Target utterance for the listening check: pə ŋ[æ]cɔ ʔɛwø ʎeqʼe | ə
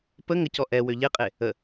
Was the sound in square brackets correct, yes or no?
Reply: no